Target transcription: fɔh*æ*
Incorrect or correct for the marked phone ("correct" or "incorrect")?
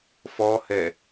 incorrect